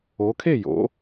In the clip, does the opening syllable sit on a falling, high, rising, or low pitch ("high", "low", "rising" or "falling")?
rising